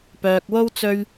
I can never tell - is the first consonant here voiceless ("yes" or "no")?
yes